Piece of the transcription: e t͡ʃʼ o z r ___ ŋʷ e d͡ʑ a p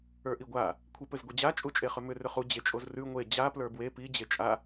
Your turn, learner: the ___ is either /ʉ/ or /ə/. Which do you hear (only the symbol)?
ʉ